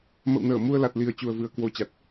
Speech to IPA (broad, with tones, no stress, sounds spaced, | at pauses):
m ə̰˧˨ w n əː˧˩ m u˧ ə̯ l a˨˩ t̚ l i˨˩ ə̯ t͡ɕ u˨˩ ə̯ v ɨ˨˩ ə̯ k w o˧ t͡ɕ a˨˩ t̚